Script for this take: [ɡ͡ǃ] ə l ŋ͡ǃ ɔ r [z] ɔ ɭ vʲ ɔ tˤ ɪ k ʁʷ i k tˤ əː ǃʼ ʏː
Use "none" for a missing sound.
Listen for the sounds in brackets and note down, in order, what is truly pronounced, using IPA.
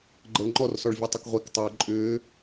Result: ɡ͡ǃ, s

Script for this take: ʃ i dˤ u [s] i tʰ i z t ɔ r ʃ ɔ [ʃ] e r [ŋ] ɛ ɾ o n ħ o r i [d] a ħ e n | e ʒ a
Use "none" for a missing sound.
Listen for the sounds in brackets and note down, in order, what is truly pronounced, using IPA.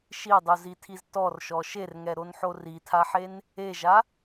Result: z, ʃ, ŋ, tʰ

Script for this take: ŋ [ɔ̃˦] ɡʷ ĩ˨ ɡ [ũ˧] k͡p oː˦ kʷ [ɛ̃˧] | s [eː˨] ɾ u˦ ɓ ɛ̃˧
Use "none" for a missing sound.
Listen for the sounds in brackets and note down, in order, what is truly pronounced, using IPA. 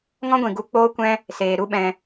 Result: ɔ̃˦, u˧, ɛ̃˦, eː˨

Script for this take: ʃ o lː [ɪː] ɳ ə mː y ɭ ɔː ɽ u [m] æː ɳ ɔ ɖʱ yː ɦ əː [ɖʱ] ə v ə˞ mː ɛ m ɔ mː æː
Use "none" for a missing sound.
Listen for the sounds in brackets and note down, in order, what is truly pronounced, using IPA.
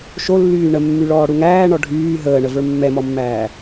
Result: yː, ŋ, ɳ

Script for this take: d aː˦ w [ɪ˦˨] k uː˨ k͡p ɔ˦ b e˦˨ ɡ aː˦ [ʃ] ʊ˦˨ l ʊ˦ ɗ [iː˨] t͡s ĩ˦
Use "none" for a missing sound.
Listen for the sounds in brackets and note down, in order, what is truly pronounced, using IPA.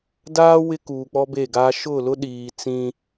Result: ɪ˦, ʃ, iː˨

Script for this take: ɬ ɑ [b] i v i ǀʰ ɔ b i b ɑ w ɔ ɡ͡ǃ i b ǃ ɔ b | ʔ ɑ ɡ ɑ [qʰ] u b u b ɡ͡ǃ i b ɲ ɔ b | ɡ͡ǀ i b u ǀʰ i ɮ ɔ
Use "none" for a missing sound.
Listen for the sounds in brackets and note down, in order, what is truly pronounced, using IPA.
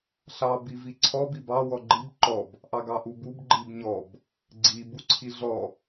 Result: b, ʔ

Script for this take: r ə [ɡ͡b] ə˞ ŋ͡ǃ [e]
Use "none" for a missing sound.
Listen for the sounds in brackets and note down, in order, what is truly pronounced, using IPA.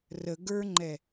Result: ɡ, ɛ

